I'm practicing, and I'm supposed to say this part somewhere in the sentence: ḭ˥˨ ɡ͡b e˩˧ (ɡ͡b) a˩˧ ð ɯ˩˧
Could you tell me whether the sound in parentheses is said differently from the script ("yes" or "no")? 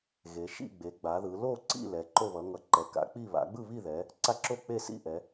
no